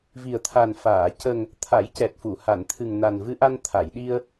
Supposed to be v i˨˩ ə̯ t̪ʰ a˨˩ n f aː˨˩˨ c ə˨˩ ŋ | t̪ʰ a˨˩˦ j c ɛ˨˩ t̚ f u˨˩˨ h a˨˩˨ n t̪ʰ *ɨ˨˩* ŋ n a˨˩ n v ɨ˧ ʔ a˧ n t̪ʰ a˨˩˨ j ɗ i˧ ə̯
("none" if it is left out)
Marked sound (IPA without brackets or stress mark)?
ɨ˨˩